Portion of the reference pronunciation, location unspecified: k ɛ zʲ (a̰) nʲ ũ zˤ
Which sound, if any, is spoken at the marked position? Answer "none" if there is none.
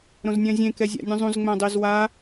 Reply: a̰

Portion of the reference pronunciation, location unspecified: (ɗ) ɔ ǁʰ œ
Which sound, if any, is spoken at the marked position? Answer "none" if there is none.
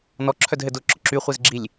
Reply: n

